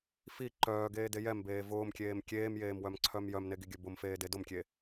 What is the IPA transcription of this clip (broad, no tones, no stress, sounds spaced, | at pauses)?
f i ǃ œː ɡ eː d e j ɛ m b eː v ʊː m kʲ eː m kʲ eː m j eː m w œ m ǀʰ œ m j œ m n e ɡ i ɡʲ œ b ʊ m f eː d e d ʊ m kʲ e